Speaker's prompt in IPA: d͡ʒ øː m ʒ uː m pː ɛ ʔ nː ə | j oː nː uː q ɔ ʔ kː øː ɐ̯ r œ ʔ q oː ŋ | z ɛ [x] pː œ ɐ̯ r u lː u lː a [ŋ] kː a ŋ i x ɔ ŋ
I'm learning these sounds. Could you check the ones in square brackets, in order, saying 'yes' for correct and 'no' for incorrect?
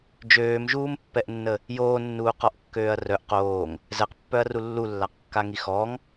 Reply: no, no

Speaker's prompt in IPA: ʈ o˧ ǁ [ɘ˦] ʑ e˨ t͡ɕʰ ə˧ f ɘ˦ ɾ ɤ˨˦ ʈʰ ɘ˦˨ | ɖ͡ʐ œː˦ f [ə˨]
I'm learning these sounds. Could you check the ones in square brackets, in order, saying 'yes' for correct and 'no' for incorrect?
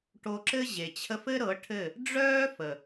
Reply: yes, yes

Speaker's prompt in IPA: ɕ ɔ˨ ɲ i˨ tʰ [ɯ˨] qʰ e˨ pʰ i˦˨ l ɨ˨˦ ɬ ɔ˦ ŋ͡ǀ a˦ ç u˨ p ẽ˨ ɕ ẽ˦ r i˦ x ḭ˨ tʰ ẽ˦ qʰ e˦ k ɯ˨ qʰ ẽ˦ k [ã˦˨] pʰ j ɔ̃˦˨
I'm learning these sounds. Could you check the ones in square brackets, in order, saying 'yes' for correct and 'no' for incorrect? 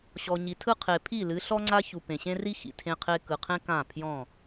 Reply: no, yes

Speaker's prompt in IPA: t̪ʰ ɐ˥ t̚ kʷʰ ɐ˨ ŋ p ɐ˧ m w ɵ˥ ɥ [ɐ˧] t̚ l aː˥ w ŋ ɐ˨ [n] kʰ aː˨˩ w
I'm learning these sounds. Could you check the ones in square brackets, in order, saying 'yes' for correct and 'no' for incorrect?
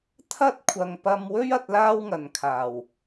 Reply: yes, yes

